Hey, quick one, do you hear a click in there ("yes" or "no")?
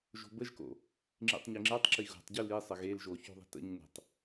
yes